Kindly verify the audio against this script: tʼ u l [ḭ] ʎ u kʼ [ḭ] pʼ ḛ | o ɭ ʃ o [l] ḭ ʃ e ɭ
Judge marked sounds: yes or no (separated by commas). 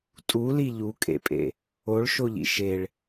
no, no, no